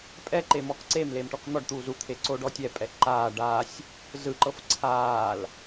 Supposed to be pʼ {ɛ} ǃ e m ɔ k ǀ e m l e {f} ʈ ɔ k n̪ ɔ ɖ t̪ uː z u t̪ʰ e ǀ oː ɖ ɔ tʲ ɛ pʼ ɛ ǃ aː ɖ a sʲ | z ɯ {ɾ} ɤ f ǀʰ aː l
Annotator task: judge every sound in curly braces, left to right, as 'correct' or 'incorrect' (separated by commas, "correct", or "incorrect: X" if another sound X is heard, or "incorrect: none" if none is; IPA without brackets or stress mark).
correct, incorrect: m, incorrect: ǃ